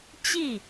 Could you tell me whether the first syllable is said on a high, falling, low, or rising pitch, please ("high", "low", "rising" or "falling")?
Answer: falling